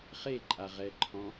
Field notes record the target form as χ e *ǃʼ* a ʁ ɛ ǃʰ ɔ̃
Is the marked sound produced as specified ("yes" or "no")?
yes